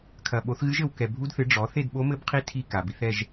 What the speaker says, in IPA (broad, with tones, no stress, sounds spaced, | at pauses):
kʰ ɐ˨ ɓ o˨˥ θ ɣ ɨ˦˥ ʒ ɘ˨ w k ɛ˨ bʱ u˦˥ d θ ɨ˨˥ ɖ͡ʐ ɔ˨˥ θ e˥˧ d ɓ o˦˥ m ɘ˦˥ b qʰ i˦˥ tʰ i˥˧ k a˨ b i˨˥ θ ɛ˥˧ ʒ